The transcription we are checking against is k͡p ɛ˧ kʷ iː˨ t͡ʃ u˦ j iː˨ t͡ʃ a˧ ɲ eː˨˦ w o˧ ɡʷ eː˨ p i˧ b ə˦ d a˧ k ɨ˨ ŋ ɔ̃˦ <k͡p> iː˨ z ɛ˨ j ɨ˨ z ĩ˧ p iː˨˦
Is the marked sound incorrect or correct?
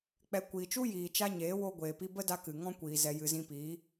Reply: incorrect